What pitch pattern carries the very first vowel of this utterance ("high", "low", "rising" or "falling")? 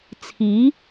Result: rising